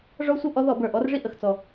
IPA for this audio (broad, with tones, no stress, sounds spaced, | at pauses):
ʐ ɔ˦ sʷ ɤ˦ ʔ ɔ˨˦ ð ɔ˧˩˧ b ə˞˨˩ ʔ ɔ˨˦ r ʐ i˦ ʔ ə˨˩ x t͡s ɔ˨˩